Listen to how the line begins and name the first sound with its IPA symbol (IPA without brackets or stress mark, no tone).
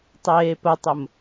tˤ